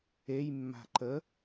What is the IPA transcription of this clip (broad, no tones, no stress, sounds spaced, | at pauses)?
e j mː a̤ ǃ ə